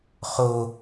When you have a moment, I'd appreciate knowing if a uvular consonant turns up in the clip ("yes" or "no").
yes